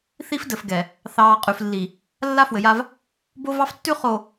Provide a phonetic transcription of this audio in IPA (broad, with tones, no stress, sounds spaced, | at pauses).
θ i˦ f d ɘ˨ f ɡ ɛ˨ | θ ɑː˨ qʼ ʉ˨ f lː i˨ | lː a˦ f w ɘ˨ j a˦ v | b o˦ v ɑ˦ f tː ʉ˦ χ o˨